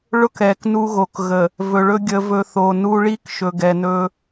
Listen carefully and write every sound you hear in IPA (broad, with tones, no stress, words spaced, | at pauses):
ɭʊ˦k ɛ˨knu˦ ɣo˨k ɣə˨ | vɵ˨ɭɵ˦ ɡʲə˨vɵ˨ θo˨nu˦ ɭi˦k ʃɵ˨ɡɛ˨nɵ˦